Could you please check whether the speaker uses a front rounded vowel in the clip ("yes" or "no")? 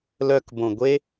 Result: yes